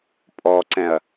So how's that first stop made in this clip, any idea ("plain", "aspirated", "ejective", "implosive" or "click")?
ejective